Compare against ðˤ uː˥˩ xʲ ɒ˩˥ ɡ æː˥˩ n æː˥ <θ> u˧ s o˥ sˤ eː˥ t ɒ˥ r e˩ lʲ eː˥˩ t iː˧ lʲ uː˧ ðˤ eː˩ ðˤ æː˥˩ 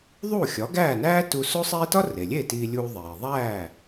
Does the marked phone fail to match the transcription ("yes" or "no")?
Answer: yes